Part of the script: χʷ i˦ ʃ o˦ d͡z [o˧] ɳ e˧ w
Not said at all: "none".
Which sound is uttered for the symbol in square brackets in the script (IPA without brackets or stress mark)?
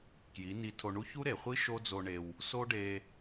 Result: o˧